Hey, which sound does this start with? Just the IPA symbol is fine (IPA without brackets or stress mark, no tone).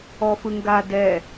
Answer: ɔ